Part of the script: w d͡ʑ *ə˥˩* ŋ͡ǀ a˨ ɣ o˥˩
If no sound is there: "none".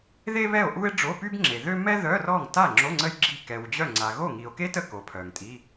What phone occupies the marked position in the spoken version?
œ˥˩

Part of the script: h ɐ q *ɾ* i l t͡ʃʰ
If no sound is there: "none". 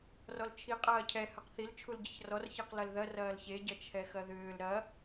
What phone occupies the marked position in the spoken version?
θ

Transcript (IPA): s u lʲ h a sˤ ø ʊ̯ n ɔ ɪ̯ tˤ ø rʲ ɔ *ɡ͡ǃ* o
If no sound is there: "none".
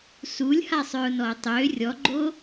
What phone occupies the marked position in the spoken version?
ɡ͡ǃ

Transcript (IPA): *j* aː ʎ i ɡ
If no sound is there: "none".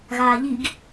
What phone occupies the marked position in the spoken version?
ɣ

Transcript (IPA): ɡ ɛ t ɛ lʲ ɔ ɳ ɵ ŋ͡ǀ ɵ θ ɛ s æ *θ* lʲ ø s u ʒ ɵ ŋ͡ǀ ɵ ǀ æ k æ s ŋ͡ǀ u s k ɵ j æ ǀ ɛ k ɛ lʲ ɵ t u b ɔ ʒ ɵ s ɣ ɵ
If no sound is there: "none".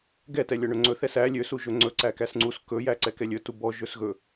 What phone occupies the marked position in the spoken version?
none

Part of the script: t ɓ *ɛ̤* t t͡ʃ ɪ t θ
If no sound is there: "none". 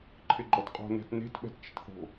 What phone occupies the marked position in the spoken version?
ɛ̤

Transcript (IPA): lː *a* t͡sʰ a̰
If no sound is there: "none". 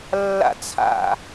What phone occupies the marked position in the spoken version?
a̰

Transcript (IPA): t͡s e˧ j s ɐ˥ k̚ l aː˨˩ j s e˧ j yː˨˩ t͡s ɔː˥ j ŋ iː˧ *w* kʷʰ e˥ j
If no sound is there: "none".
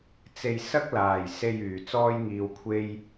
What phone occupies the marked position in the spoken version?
w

